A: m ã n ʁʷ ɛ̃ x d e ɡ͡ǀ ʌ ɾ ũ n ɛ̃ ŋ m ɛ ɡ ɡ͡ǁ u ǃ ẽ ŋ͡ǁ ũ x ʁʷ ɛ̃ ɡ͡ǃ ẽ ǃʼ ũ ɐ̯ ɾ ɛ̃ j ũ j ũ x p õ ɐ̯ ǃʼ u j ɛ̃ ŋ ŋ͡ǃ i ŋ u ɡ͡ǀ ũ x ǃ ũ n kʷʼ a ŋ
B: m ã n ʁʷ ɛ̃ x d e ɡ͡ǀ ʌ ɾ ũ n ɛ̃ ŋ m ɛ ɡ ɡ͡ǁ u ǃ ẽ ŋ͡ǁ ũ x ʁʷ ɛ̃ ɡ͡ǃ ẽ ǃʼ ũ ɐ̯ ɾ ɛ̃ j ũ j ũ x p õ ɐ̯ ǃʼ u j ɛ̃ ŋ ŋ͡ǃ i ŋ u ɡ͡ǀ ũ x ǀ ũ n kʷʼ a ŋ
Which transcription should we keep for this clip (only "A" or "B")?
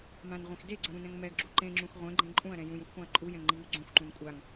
A